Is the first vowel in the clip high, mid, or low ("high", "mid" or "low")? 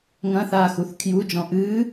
low